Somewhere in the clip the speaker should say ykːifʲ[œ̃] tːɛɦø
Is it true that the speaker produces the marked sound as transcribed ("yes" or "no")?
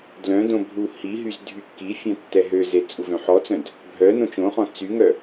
yes